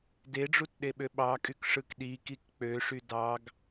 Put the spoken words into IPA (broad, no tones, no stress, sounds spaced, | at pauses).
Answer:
d e ɖ͡ʐ u t ɗ e ɓ ø ɓ ɑ kʼ y k ʂ ɯ k ɗ i k i k k͡p ø ʂ y d ɑ ɡ